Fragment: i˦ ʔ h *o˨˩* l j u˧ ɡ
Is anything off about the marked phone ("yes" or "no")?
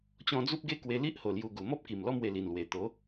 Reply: no